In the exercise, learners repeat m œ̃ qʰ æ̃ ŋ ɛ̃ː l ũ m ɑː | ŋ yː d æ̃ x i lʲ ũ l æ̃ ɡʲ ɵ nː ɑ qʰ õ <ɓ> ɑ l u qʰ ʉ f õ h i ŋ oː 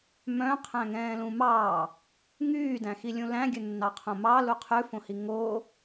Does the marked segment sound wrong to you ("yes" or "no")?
yes